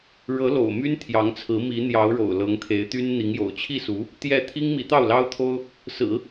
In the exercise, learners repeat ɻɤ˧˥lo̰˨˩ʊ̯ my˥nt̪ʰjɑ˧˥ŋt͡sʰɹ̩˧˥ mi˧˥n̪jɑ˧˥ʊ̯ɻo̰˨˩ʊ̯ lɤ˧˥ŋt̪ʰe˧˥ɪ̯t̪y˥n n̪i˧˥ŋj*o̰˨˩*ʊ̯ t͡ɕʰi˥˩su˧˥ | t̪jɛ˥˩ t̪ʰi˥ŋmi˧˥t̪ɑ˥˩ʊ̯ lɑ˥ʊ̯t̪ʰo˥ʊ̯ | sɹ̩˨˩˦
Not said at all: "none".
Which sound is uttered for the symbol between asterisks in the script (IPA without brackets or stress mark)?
o̰˨˩